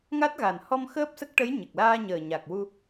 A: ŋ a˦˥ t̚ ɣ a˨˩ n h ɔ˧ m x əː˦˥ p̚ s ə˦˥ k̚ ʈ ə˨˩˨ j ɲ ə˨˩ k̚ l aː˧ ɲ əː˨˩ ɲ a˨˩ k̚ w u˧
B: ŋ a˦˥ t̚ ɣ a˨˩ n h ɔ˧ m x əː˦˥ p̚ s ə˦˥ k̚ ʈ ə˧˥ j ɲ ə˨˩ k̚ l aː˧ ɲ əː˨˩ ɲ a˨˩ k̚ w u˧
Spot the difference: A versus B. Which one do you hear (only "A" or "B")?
B